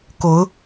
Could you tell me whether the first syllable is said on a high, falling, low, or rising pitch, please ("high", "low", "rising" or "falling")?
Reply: rising